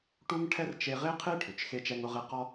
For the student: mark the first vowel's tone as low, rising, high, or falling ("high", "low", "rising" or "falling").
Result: high